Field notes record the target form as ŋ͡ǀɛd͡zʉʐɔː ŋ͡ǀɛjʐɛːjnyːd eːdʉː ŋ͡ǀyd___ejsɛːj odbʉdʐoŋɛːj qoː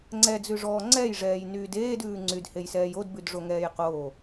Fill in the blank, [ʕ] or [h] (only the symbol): h